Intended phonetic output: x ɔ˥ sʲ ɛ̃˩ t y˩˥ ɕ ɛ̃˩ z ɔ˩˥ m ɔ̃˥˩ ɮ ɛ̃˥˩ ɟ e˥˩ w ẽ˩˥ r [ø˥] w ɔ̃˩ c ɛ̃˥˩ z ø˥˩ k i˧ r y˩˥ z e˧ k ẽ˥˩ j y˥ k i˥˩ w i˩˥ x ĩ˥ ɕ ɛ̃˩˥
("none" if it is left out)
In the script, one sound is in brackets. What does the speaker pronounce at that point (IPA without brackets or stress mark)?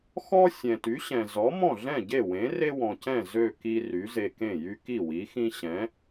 e˥